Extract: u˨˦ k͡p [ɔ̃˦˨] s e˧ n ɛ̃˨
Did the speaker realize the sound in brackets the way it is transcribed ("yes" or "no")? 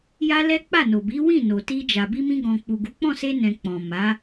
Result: yes